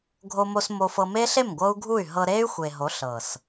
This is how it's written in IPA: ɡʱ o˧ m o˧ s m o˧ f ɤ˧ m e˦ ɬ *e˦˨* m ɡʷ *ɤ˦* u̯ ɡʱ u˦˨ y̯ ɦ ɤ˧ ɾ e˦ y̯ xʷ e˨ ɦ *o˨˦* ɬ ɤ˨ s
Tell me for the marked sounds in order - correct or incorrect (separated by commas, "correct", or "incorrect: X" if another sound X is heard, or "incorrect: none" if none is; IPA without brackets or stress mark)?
correct, correct, correct